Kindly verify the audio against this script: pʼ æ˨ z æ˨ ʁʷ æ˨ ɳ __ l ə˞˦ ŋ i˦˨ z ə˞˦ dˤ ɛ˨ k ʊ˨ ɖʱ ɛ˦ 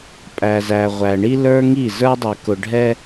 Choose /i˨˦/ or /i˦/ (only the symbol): i˦